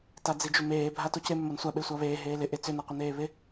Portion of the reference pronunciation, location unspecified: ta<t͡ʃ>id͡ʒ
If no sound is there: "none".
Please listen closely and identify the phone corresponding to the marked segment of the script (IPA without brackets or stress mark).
d͡z